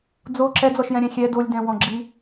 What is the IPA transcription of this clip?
d͡z o ǁ ɛ d͡z ɔ ʃ j ɛ̃ ɾʲ ɛ̃ xʲ ɛ d o lʲ d ɛ̃ w ɔ̃ ɡ͡ǁ i

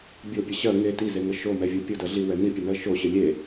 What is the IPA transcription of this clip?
bʲ o pʲ ə ɕ ɜ ŋ e t i z e ŋ ə ʃ o m ɛ vʲ o pʲ o d ɜ ɮ i w ɛ n i pʲ ə n ɜ ʃ o ɕ ə lʲ e

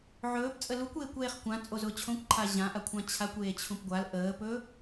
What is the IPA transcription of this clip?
ʕ ɵː p t͡sʼ ə l u kʷ eː kʷ eː χ kʷ ã t͡sʼ o z ʊː t͡ɕʰ õ kʷ ǃʰ a ʑ ã ʔ a kʷʰ ã t͡ɕʰ a kʷ eː t͡ɕʰ ũ p ɡʷ a l ʔ əː p ɵː

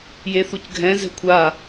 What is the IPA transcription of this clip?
j e θ u c ɡʱ ɛ̃ z ɛ̤ kʷʰ a

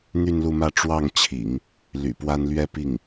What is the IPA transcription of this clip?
n̪ y˥˧ n l u˥˧ m ä˥˧ ʈ͡ʂ w ɑ˥˩ ŋ t͡ɕʰ ḭ˨˩˦ ŋ | l y̰˨˩ p w a˥ n l ɥ ɛ˥ p i˥˩ ŋ

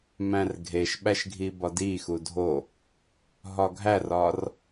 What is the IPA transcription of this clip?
m æ̃ r ɡʱ e ʃ ɓ æ ʃ ɡʱ i b ɒ d i x u dʱ o | ɦ ɒ ɡʱ æ r ɒ r

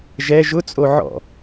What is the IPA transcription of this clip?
ʒ ɛ ʒ ʊ t͡sʼ o ʕ ɔ̰

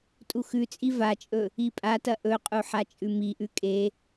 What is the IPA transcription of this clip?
tʼ u x ʉ t͡sʼ i v a t͡ʃʼ ɵ | i pʼ a t ɐ ʔ ɵ qʼ u ħ a t͡ʃʼ ʉ m i ʔ ʉ kʼ e

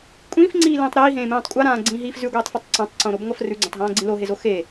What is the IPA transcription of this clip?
kʷʼ ĩː f ŋ͡ǀ iː l ĩː tˤ ɾ iː ɦ ẽː m ẽː tˤ kʷʼ a ɾ ãː ɡ͡ǀ ĩː ɦ iː f z ʉ ɡʷ iː tˤ f ʉ tˤ ǀ ã tˤ ǀ õ ɾ o b ŋʷ a f r ʉ ɡ͡ǀ ẽ tˤ ɦ ãː ɡ͡ǀ ĩ l o ɦ e z o x e

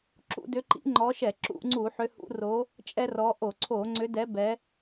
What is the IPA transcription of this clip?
ǁ ṵ˧˩˧ d ʏ˨˦ ǃ ḭ˨˦ ŋ͡ǃ ɔ˨˦ ʃ ɛ˧˩˧ ǁ ṵ˧˩˧ ŋ͡ǀ u˧˩˧ ħ ʏ˨˦ h ṵ˨˦ r o˨˦ | t͡ʃʼ ɛ˦ r ɔ˨˦ ʔ o˧˩˧ ǀʰ o˧˩˧ ŋ͡ǀ ʏ˨˦ d ɛ˨˦ b ɛ˨˦

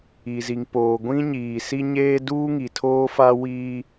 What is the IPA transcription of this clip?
i˨ z i˨ ŋ p oː˨ ɡʷ ĩ˦ ɲ iː˨ s i˦ ɲ eː˦ d uː˦ ŋ i˨ tʰ oː˦ f a˦ w iː˦

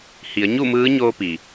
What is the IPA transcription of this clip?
h i˩˧ ə̯ ɲ u˥˨ m ɯː˧˥ ɲ oː˧ p i˩

